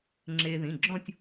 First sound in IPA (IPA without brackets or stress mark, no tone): ŋ͡ǁ